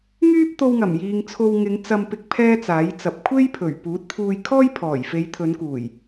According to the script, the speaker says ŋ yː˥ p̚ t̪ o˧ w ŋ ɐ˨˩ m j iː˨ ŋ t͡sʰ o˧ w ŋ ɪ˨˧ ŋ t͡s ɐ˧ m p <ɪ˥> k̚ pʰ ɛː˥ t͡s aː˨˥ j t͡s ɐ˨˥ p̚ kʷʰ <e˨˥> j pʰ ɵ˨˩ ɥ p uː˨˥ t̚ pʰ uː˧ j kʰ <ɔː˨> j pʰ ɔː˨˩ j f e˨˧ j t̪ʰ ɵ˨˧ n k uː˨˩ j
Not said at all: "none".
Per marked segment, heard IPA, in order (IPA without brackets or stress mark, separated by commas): ɪ˧, e˥, ɔː˥